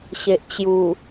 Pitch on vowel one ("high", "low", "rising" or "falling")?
low